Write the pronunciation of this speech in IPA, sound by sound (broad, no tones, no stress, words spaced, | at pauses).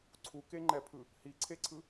ǀʰukeŋ͡ǃɛpʰɯ | hiǀʰeǀʰɯ